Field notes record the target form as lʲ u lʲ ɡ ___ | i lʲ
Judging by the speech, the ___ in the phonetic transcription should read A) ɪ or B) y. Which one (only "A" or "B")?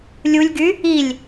B